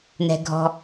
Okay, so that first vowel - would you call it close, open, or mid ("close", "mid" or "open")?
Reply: mid